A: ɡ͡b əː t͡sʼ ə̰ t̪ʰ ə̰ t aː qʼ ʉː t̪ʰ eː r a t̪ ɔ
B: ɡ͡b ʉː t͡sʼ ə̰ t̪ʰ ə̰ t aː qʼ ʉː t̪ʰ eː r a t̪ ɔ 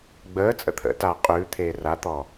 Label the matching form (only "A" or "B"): A